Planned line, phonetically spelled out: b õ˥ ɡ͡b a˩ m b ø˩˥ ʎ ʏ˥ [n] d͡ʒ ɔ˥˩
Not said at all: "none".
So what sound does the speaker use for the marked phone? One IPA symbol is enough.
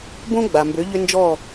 n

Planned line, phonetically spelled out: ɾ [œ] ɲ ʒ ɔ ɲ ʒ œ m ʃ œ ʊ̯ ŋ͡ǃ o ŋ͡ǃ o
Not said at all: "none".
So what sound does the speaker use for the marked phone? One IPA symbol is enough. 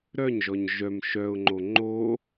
œ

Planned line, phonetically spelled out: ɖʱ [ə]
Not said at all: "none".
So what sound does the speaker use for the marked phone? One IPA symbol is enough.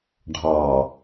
ɑ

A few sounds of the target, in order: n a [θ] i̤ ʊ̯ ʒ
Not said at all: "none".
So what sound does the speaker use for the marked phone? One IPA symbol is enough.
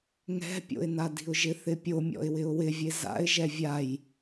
d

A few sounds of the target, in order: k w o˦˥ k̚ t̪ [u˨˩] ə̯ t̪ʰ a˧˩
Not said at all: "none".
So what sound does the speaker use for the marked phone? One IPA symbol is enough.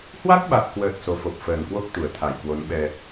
u˨˩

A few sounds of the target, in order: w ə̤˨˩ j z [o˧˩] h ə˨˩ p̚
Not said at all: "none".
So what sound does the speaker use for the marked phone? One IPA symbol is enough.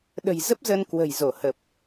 o˧˩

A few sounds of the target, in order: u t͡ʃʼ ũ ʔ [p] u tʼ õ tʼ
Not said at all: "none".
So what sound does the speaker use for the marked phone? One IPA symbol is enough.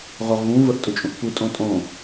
p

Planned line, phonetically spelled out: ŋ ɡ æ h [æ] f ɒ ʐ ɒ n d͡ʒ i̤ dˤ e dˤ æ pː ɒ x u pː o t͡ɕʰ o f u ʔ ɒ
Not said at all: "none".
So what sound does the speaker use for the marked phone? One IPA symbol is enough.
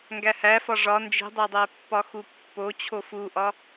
æ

